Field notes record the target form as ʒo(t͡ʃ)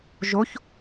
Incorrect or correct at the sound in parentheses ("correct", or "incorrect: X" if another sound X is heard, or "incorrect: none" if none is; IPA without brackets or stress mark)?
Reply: incorrect: ç